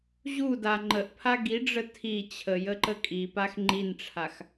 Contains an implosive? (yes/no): no